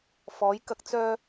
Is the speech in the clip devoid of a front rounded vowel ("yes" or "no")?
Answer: no